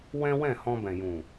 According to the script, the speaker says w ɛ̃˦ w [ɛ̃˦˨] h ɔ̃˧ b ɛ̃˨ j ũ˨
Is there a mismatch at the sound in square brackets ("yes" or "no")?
no